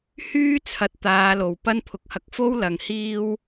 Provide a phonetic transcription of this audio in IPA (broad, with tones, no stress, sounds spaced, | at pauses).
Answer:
h yː˥ t͡sʰ ɐ˨˥ t̚ t̪ aː˨˧ l o˨˩ w p ɐ˥ n pʰ ʊ˨ k̚ h ɐ˧ k̚ f o˥ w l ɐ˨ ŋ h iː˥ w